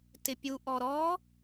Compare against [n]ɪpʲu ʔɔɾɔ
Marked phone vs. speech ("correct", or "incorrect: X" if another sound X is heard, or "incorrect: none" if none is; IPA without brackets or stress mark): incorrect: t